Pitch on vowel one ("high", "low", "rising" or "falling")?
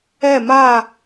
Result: falling